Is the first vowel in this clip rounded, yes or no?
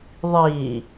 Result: no